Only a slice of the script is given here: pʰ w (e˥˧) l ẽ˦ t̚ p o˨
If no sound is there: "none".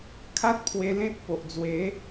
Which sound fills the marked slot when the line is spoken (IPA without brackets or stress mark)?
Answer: e˧